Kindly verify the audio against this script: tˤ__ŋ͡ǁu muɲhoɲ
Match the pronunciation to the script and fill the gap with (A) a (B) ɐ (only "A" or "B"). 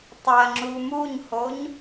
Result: B